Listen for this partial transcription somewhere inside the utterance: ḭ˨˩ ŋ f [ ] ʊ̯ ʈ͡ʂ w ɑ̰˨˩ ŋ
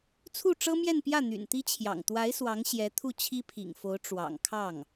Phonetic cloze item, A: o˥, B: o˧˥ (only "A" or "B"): B